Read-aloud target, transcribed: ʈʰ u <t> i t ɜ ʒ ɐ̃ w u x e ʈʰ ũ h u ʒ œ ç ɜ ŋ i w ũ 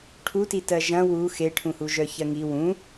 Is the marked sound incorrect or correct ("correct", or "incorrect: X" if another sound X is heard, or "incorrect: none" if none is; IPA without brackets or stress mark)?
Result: correct